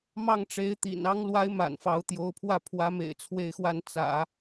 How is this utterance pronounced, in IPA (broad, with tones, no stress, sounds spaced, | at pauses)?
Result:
m ɑ˥˩ ŋ ʈ͡ʂ e˧˥ ɪ̯ t̪ ḭ˨˩ n ɑ˧˥ ŋ l w a˧˥ ɪ̯ m a̰˨˩ n f ɑ˧˥ ʊ̯ t̪ j o˧˥ ʊ̯ pʰ w ä˥˩ pʰ w ä˧˥ m ḛ˨˩ ɪ̯ t͡sʰ w e˥˧ ɪ̯ x w a˥˩ n t͡s ä̰˨˩˦